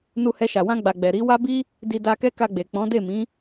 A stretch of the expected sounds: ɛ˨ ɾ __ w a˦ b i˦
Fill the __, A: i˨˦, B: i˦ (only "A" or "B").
A